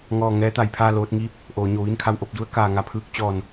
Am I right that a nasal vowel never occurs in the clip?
yes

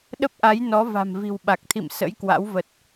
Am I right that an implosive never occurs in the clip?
no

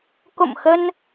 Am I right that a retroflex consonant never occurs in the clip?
yes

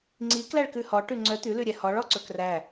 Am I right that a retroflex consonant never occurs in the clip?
no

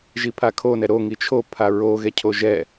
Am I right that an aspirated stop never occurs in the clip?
no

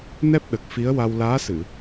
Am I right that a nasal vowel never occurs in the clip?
yes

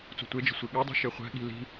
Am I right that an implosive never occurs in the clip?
no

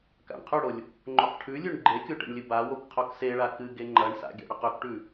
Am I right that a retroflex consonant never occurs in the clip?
no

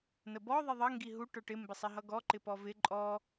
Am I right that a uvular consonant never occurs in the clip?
yes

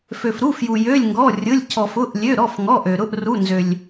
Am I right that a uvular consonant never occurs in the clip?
yes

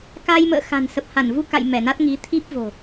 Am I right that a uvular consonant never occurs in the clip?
yes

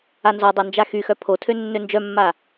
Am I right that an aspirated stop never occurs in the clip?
no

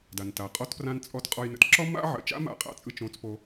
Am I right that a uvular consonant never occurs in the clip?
no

